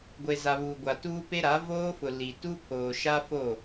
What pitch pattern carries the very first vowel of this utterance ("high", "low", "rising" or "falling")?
low